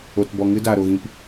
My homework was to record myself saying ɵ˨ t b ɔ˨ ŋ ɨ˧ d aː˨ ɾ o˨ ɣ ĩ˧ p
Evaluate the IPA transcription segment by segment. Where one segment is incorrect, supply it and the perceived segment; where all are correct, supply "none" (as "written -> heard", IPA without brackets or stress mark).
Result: ɵ˨ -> o˨